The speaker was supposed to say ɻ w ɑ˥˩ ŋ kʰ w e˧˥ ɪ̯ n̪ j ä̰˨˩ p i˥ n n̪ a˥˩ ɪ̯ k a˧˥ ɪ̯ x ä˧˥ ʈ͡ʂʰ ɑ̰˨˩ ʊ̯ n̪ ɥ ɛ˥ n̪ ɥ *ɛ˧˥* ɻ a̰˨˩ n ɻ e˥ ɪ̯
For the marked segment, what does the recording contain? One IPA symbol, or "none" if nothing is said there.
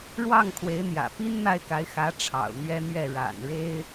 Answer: ɛ˥˩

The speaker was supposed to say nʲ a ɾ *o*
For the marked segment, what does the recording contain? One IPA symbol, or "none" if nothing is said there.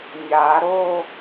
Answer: o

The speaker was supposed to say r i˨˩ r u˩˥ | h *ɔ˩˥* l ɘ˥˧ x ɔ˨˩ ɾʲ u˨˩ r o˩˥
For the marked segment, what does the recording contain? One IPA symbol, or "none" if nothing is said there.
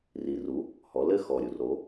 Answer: ɔ˩˥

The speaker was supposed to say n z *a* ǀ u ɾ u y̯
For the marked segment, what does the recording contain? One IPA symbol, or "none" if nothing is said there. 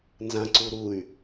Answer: ã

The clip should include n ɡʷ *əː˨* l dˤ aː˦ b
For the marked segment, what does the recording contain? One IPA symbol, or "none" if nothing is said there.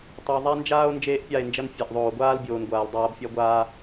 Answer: aː˨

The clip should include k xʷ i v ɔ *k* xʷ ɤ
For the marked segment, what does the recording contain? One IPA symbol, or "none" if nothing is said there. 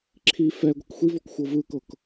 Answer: k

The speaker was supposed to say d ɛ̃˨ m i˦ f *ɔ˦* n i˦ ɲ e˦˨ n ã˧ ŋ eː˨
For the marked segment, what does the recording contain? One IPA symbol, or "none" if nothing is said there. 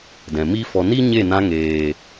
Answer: ɔ˧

